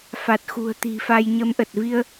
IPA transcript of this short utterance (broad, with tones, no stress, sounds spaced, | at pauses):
f a˨˩ t̚ x ṳ˨˩ ə̯ t̪ i̤˨˩ f a˧ j ɲ ə˨˦ m ʔ ə˨˩ t̚ v i˧ ə̯